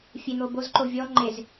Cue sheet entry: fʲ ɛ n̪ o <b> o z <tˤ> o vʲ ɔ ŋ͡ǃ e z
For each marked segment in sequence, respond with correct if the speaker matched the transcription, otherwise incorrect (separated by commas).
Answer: correct, incorrect